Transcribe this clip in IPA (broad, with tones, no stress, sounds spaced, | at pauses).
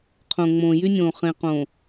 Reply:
qʰ õ˨ ŋ͡m õː˨ j y˦ nʲ õː˨ χ ẽ˨ q õː˨